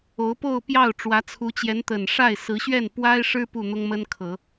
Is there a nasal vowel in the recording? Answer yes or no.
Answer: no